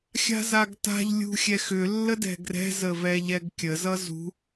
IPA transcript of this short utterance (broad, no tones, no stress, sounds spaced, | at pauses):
xʲ a̤ z a ɡ t a̤ ʎ lʲ ṳ xʲ ɛ x ʏ lː ə d ɛ̤ ɡ r ɛ̤ z ə v ɛ ʎ ɛ ɡ kʲ ə z ʌ z ṳ